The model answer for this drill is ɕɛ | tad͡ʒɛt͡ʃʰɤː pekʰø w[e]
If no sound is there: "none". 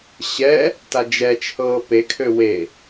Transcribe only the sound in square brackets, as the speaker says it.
e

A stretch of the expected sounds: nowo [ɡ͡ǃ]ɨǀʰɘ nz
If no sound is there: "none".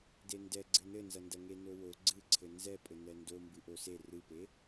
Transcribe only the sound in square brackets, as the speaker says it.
ɡ͡ǀ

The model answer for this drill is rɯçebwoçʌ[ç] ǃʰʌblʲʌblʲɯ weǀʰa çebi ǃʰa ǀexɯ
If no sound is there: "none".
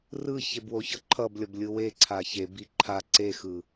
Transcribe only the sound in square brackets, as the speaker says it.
none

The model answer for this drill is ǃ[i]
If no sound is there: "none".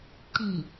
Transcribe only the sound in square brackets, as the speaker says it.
i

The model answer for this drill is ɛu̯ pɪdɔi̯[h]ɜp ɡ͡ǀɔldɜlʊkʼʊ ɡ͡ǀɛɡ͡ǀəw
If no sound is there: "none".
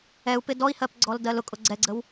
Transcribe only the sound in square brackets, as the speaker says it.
h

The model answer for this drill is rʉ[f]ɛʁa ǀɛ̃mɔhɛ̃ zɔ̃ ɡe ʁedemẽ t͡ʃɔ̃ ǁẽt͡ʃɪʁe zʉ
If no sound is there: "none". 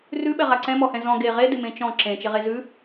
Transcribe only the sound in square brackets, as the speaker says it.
ɓ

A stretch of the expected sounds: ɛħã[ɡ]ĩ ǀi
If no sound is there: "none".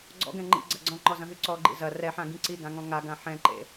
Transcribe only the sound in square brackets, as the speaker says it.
ɡ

